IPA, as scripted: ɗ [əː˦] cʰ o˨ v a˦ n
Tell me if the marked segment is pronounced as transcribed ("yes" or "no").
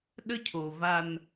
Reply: no